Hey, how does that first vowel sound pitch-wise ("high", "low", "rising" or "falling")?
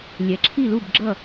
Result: rising